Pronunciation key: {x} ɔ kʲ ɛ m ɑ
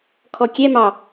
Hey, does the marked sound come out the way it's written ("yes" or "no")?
no